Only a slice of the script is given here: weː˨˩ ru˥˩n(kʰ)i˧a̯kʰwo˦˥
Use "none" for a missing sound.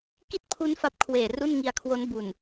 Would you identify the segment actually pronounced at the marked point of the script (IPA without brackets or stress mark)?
ŋ